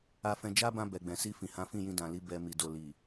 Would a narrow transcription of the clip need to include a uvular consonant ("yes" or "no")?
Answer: no